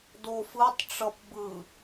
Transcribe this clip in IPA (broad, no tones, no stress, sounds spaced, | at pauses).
d o f ɯ tˤ ʈ͡ʂ ʌ p b ɯ